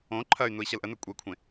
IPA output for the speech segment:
õ ǃʰ ɐ y̯ n u i̯ ɕ ɐ l ʔ ə n ɵ kʷʼ e kʷʰ ẽ

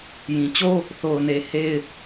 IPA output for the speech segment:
j ĩ˨ t͡ɕ o˦ | θ o˨ ʊ̯ n e˨ h e˦ ɪ̯

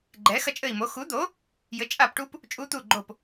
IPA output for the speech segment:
ɡ͡ǃ ɛ˨˥ x ɐ˦˥ t͡ʃʼ ɘ˦˨ i̯ m o˨˥ x u˨˥ d̪ o˨˥ | j ɘ˨˥ t͡ʃʼ a˦˨ p ʈ u˦˥ p | t͡ʃʼ u˦˥ t̪ u˦˨ ɡ͡ǃ o˦˨ p

